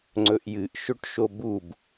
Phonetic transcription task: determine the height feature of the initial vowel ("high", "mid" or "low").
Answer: mid